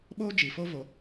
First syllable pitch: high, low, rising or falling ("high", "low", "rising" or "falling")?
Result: high